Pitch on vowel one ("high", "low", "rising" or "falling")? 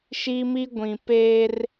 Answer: high